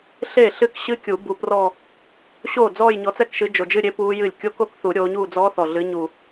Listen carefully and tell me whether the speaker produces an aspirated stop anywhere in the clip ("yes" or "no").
no